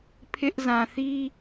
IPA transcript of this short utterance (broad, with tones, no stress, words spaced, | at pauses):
pʰɪ˦ʔ zã˨θi˦